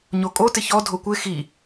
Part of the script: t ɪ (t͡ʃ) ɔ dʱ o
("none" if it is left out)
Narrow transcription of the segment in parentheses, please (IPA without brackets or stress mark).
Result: ç